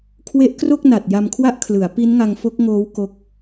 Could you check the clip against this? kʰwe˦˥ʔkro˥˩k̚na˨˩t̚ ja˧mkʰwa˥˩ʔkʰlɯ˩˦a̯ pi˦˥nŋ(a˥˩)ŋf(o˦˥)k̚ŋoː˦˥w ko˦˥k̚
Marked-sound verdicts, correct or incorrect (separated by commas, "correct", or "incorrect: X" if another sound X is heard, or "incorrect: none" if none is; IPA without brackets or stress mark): incorrect: a˧, correct